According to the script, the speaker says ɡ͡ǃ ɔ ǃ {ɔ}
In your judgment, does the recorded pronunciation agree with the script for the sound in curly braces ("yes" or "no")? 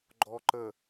no